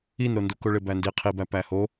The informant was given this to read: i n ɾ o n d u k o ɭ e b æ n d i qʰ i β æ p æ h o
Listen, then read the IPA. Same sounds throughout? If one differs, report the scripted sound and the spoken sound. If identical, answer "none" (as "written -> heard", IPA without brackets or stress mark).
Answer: β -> b